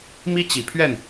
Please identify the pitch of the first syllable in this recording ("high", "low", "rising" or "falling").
high